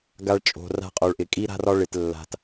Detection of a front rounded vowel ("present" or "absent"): absent